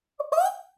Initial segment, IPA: ʔ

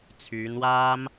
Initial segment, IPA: t͡sʰ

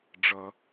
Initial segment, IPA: ɖ͡ʐ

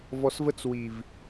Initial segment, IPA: v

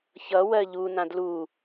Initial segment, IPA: ç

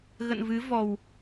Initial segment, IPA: ɣ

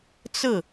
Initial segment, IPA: t͡s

